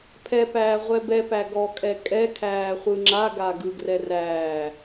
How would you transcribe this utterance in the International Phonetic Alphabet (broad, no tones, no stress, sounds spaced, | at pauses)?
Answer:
pʰ ɛ p æː ʁʷ ɛ b ɛ p æ ɡ ɔ kʼ ɛ kʼ ɛ kʰ æː χʷ ɯ ŋ͡ǁ a ɡ a ɡ ɯ ɡ r ɛ r æː